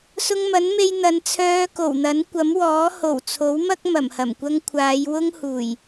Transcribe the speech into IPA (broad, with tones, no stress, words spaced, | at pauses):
sʊ˧ŋmɐ˨˥nme˧j n̪ɐ˨˧nt͡sʰœː˧ko˨˩wn̪ɐ˨˥n kʷɐ˨˥mwɔː˨˥ ho˨˩wt͡sʰo˨˥wmɐ˥k̚ mɐ˨˩mhɐ˨˩mkʷɐ˥ŋ kʷʰaː˨˧jwʊ˥ŋhuː˨˩j